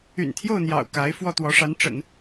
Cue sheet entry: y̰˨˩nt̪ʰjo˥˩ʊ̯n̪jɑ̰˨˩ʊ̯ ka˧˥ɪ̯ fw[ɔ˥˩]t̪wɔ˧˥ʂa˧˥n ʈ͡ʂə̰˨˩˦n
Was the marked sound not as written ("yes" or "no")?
no